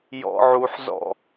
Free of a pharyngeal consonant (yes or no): no